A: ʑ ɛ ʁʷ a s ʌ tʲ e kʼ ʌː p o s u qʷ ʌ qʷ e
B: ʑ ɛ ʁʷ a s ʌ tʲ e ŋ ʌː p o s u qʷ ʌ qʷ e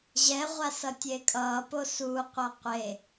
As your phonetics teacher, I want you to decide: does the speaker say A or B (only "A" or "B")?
A